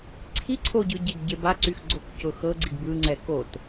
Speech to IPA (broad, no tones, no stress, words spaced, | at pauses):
ǀʰi ǀʰoɟɯ ɟeɡɟebaǀyx ɡ͡ǀokcʊxɤɡ͡ǀiɡ bɯŋ͡ǀɛ kot